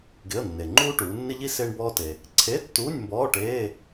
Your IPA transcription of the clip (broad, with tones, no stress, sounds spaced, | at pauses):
ɡ ɪ˧˥˧ ə̯ nː e˨ ŋ͡ǃ uː˥ ʈ uː˨˦ nː ɪ˥ ʎ i˥ s ɪː˥ ɳ b ɔː˥ t e˨ | ǀʰ e˧˥˧ tː uː˧˥˧ nʲ m b ɔː˧˥˧ ʈ eː˧˥˧